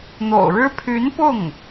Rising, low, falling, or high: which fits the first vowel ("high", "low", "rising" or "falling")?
low